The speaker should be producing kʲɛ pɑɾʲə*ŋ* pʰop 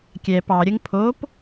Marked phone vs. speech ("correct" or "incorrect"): correct